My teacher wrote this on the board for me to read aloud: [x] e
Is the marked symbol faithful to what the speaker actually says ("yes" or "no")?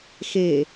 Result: yes